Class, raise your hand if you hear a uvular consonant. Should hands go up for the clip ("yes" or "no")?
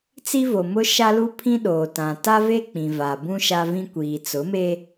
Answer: no